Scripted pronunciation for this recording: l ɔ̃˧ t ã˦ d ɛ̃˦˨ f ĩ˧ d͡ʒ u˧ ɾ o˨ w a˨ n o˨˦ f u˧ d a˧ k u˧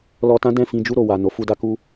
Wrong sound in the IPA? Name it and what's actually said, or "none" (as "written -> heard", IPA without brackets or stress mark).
ɔ̃˧ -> ɔ˧